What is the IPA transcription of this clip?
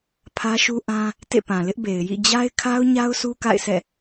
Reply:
pʰ ä˦ ʃ u˦ ʔ ã˦ | t ḛ˦˨ p ã˨ l ɪ˦ ʔ b e˨ ɪ̯ j ḭ˦˨ d͡ʑ a˦ ɪ̯ kʰ a˦ ʊ̯ ɲ a˦ ʊ̯ s u˦ k a̰˦˨ ɪ̯ sʰ ɛ̰˦˨

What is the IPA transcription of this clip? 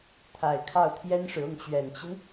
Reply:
t̪ʰ a˨˩ ɪ̯ kʰ ɑ˥˩ ʊ̯ t̪ʰ j ɛ˥ n ʂ ɻ̩˨ ʊ˥˩ ŋ t͡ɕ ɥ ɛ˨˩ n t͡ɕ i˦ n

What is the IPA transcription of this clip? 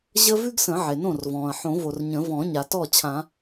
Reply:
ʑ ə˥ v ʉ˥ ɡ s ə̃˨˩˦ ʕ e˩ n õ˥˩ r v ɔ̃ː˩ ɐ̯ ħ õ˨˩˦ v o˩ r ɲ ə̃˨˩˦ v ɔ̃˨˩˦ ɲ a˩ t ɔ˥˩ t͡ɕʰ ã˨˩˦

